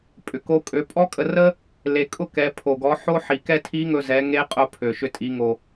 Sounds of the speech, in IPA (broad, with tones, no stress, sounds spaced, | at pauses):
pʼ ʏ˩ k o˧˥ kʼ ø˩˧ pʼ ɔ˥ kʼ ə˧ r ə˥ | l e˩˧ kʼ ʊ˥ k ɛ˩˧ pʰ o˩ ɡ ɔ˩˧ ħ o˥ ħ i˩ k ɛ˥ tʰ i˧˥ ŋ ɵ˧ z ɛ˩˧ ŋ e˧˥ qʼ ʊ˧ pʰ ø˩ ʃ ʏ˧ tʼ i˩˧ ŋ o˩